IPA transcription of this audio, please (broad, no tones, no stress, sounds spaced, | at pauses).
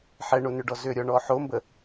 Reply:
ħ ɛ ɳ o n ʏ ɖ ɔ z ʏ ɾʲ ɔ ɳ ɔ ħ o m b ə